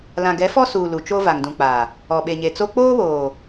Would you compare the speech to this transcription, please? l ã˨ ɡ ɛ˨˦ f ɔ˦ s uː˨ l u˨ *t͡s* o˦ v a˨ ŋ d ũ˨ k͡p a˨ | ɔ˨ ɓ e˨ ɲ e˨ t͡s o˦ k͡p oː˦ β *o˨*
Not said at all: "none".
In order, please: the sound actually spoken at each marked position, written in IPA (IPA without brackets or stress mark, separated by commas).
t͡ʃ, oː˨